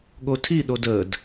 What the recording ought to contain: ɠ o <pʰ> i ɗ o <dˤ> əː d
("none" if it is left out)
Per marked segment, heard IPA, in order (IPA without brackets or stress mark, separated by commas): tʰ, d